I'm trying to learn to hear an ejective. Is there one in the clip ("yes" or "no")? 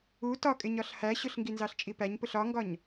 yes